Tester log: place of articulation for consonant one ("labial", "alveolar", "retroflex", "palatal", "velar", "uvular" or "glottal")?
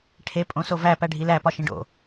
retroflex